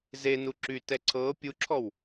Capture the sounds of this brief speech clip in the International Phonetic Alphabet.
z e n u ǁ y t ɛ ǀʰ ɤ pʲ u ǁʰ ɔ w

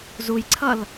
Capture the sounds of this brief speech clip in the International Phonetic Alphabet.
z u j ǀʰ ʌ l

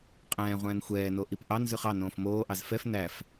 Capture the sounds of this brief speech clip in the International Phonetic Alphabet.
qʼ ɛ̃ː ʁʷ ɛ̃ː n xʷ ɛː n o ʔ i p ʔ ɑ n z ʉ χ ɑ n õː f m oː ʔ ɑ z f ɛ f n æ f

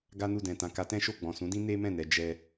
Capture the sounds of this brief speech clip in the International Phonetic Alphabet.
ɡ a˦ n u˦˨ d ɛ̃˨ t ã˨ k a˨˦ t ɛ̃˦ ʃ o˦˨ ɡ͡b ɔ̃˨ s ũ˨˦ d ĩ˦ n e˦ m ɛ̃˦˨ n ɛ˧ d͡ʒ ɛ˧

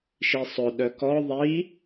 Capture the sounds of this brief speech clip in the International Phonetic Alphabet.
ʃ i sˤ ʊ ɗ œ k ɔ ðˤ i

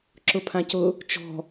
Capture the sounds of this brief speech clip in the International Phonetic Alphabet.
ǁ ʊ pʰ ã c ʊ | t͡ʃ ɔ̤

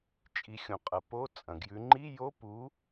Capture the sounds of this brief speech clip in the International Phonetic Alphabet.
t͡ʃʼ i˩˧ xʲ õ˩ qʼ ɐ˩˧ p o˧˥˧ t͡sʼ ɐ̃˩ ɡ j ʉ˩˧ ŋ͡ǃ i˧˥˧ j o˧˥˧ p u˨˥

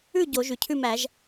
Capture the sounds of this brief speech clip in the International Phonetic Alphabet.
ʉ˥˨ ɟ o˨˩˦ ʒ ʉ˩ cʰ ʉ˥˨ m æ˨˩˦ ʒ

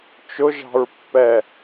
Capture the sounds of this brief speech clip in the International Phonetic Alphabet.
t͡ʃ ʊ ʒ ɑ̤ ɹ pː ɛ

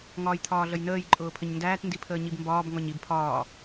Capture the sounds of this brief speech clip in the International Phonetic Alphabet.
ŋ ɒː j t̪ʰ ɒː ɮ ə j n əː j ǃʼ ʊː pʰ ə ɲ n d æː t n d i pʰ əː ɲ i b m b ɒː b ŋ ɒ ɲ i b pʰ ɒː

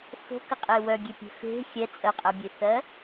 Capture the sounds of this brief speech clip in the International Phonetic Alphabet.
f o̤ k ə qʼ e w œ ɡʲ e pʲ e̤ f e̤ xʲ ɛ t͡sʼ ɜ qʼ ɜ bʲ e θ ɜ

